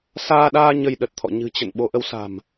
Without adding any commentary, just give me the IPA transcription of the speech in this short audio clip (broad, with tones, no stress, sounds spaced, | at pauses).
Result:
s aː˧ ɗ aː˧ ɲ ə˧ j ɗ ə˨˩ t̚ t̪ʰ ɔ̰˧˨ ɲ ɨ̤˨˩ t͡ɕ ə̰˧˨ n ɓ o˨˦ ʔ ə˨˦ w s a̤˨˩ m